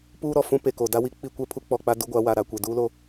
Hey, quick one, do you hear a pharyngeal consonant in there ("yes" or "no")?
no